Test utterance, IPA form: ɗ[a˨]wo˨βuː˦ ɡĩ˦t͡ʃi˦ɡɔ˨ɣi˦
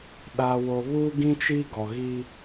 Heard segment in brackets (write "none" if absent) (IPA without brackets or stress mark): aː˨